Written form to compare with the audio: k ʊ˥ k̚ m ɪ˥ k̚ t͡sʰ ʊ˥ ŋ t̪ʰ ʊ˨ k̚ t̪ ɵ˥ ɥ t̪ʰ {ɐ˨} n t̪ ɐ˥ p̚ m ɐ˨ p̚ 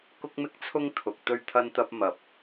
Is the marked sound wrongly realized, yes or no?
yes